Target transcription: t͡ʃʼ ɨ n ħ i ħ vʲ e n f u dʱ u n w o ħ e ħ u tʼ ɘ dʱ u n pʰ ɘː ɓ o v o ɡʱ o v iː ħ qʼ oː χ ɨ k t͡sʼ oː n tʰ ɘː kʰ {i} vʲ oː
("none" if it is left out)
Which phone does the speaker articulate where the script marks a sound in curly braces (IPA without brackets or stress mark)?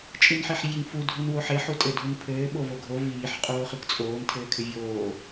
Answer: ɨ